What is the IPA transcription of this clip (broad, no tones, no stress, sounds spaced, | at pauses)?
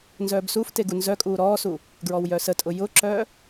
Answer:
n z œː b s u f t e ɡ u n z œ kʼ uː ɾ ɔː s u | ɡ ɹ ɔ w j œ s ə tʼ ʊ j ʊ ǁ œː